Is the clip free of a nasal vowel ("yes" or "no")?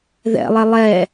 yes